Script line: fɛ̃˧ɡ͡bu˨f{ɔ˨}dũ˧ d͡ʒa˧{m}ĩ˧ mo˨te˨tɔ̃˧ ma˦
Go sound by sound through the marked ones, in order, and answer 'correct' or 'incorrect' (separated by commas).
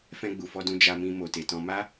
incorrect, correct